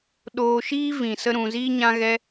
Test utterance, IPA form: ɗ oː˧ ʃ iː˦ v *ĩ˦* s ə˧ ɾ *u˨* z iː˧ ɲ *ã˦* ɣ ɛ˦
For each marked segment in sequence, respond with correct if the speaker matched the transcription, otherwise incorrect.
incorrect: ĩ˨, incorrect: ũ˨, correct

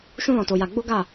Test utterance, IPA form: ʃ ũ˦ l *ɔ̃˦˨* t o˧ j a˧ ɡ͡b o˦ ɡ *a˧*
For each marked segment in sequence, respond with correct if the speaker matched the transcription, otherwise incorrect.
incorrect: ɔ̃˧, incorrect: a˦˨

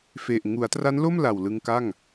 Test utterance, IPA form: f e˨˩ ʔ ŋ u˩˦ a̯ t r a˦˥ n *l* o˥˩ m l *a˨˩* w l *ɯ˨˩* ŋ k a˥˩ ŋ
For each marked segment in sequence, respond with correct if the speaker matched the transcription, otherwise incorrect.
correct, correct, incorrect: ɯ˧

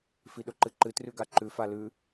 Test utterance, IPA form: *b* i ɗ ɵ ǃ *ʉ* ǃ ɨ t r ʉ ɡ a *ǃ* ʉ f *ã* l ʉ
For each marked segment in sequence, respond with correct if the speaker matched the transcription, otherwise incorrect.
incorrect: f, incorrect: ɨ, correct, incorrect: a

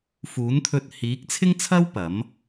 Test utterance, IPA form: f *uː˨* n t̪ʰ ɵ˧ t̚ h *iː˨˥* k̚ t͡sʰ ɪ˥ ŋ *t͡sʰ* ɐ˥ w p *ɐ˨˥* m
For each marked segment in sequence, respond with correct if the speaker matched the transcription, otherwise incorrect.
incorrect: uː˨˥, correct, correct, correct

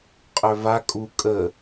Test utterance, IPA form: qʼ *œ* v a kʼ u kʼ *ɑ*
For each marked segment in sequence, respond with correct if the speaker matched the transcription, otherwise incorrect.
correct, incorrect: ə

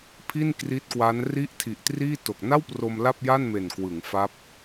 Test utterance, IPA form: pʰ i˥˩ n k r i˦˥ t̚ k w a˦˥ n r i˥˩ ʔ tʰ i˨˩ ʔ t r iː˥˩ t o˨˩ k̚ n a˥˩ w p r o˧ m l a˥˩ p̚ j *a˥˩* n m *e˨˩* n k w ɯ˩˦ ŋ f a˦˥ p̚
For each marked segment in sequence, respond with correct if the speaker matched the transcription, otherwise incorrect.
correct, correct

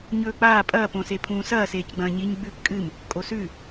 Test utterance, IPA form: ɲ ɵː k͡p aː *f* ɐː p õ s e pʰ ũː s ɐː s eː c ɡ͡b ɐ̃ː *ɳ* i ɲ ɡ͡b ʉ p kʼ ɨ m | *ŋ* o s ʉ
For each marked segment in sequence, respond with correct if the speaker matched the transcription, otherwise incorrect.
incorrect: pʼ, incorrect: ɲ, incorrect: kʼ

